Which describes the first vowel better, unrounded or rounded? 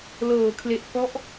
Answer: unrounded